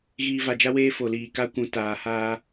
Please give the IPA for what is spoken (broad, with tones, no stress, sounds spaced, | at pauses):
ɣ iː˨ v a˨ d͡ʒ a˦ w eː˦ f o˨ l iː˨ k a˦ kʷ ũ˨ t aː˨ h aː˦